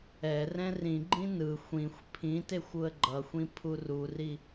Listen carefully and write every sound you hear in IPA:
ɛrɛ̃ rĩɡ͡ǃĩ nɯ xʷĩxʷ pʰĩtexʷ uə̯ɡ͡ǃʌxʷĩ pʰururi

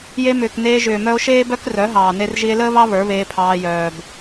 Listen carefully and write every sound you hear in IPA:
je˧ mʏː˨kneː˧ ʒʏː˨mœ˧o̯ʃeː˦bœ˦k rœ˨˦ɦɑː˨ne˧r ʒi˧e̯ləː˦βɑ˦ βə˞˨˦βeː˧pʰɑː˧ jœː˨b

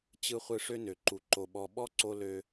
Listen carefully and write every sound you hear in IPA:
t͡ɕɯ˧χʷɯ˧ ʂø˧nø˨ǃu˨ ǃo˨ɓɔ˨ ɓɔ˦ǀo˧lø˧

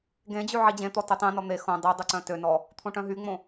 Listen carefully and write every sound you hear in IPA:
ɡẽd͡ʑy ʕid͡ʑẽt̪ɔ tɵtˤẽnɔ n̪e xõ dˤydˤu ǀœ̃tønɔ | t̪ʰõʈœ̃ɦyŋ͡mõ

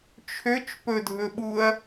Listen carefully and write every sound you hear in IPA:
t͡ʃʰøt͡ʃ pɵdʱɵɓuɐ̯

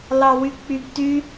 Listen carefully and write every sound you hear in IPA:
lɑwyk͡pyɡty

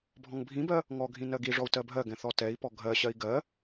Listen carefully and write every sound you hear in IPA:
bʱɔ̃ŋbʱĩbɜ | ŋɔɡʱĩ nɜɡiʐɔu̯ tɜbʱɜɡɛ̃ θɔtɛi̯pɔ ɡʱɜɕɜi̯ ɡɜ

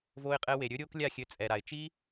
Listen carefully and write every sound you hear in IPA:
vo˦ɪ̯qʼɛ˦we˧ ɾʲɵ˦ɾʲo˦k lʲa˦˨xʲɘ˧t͡sʼɛ˨ɾa˨ɪ̯ t͡ʃi˦

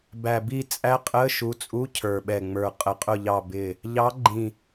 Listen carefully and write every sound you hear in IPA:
bæ˨˩bi˦˨t͡sʼæ˦˥qʼə˧˥˧ ʃu˨˦t͡sʼu˧˥˧cʰə˞˨˩ɓɛ˨˩ ŋ͡mə˞˨˩qʼə˨˦qʼʊ˦˨ʎɑ˦˨ bɪ˦˨ | ʎɑ˨˦ɡ͡ǃĩ˨˩

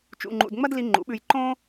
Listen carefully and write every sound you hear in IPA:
t͡ʃṵ˧ŋ͡ǃṵ˧d ŋ͡mɐ˥d li˧ ŋ͡ǃṵ˩˥ɓʉ˧j ǃõ˥

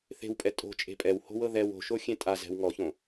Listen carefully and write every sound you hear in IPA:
θe̤wpʼɛ tʼo̤t͡ʃʼe̤ pʼɛwho̤wɤ ðɛw o̤ʃoxʲẽ tʼazɛ̤w ŋɔçõ

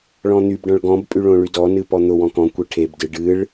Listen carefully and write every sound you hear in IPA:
ɭɔ̃n̪ybɖɔ̃ɭ ɡɔ̃bpʼy ɭõɭydɔnɨ pɔn̪ʊwɔ̃ kɔ̃kʷe ʈʰebdɨ ɖɨɭ

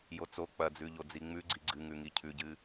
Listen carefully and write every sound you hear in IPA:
jot͡so k͡pɐd͡zʉ ʎod͡ziŋ͡mʉɡ͡ǀi ɡ͡ǀɨŋʉ ŋicʰʉɟɨ

